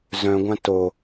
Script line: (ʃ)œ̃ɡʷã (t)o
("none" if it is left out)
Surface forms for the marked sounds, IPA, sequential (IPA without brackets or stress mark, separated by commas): z, t